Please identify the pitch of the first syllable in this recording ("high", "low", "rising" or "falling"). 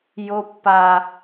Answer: high